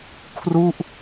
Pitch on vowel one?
falling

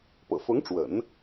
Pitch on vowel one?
low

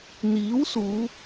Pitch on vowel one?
rising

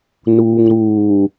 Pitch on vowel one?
low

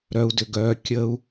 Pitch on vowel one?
high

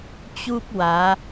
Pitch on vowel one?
high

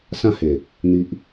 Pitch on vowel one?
falling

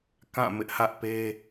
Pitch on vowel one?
falling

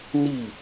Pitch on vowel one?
falling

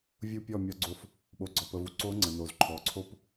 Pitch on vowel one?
falling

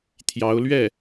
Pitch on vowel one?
rising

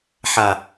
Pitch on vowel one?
low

